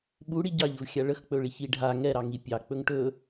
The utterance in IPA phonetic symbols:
ɓ u ɽ i ɟ ɑ ʎ ɵ v xʲ a ɭ ə x k͡p ɵ ɭ i ç i ɖʱ a ŋ ɛ ɾ ɑ ŋ i pʲ ɑ k͡p ɵ ŋ ʈ ɵ

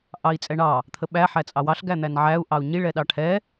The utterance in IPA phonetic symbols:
ʔ ɑ i̯ t͡sʼ ɛ ɳ ɑ | t̪ʰ ə ɓ æ ħ æ t͡sʼ ɑ w ɑ ɬ ɡ æ n̪ æ n ʕ æ u̯ ʔ ɑ u̯ ɲ i ɭ ɛ ɗ ɑ ʈʰ ɛ

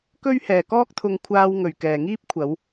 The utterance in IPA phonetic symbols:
k ɵ˥ ɥ h ɛː˨ k ɔː˥ k̚ t̪ʰ ʊ˧ ŋ kʷʰ aː˧ w ŋ ɵ˨ ɥ k ɛː˨ ŋ iː˥ p̚ kʷʰ ɐ˨˧ w

